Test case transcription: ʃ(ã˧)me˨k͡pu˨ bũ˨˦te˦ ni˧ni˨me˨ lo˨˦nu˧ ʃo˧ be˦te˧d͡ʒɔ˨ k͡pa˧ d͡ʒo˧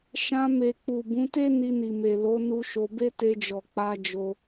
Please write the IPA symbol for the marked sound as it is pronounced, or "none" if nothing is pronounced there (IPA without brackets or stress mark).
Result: ã˧